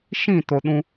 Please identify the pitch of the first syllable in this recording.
falling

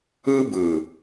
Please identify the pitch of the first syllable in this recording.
high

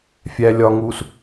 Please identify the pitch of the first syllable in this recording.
low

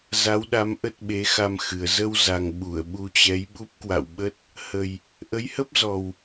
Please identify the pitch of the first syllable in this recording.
rising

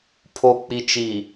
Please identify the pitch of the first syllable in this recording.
low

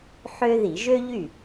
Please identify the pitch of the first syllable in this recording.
high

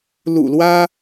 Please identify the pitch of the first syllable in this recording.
low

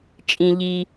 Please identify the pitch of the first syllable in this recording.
low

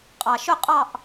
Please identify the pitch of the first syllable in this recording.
low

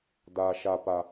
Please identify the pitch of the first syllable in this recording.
low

